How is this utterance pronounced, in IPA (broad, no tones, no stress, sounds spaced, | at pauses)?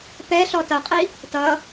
p ɛ ɬ ɔ t ʌ qʼ i | t ʌ